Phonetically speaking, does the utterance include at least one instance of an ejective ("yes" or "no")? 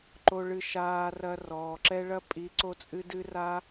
yes